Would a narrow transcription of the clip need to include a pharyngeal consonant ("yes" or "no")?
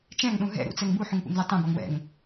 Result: yes